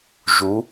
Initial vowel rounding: rounded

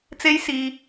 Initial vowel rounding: unrounded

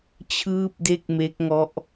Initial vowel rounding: unrounded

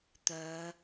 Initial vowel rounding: rounded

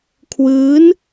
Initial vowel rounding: unrounded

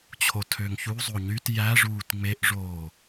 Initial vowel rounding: rounded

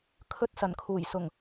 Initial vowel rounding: rounded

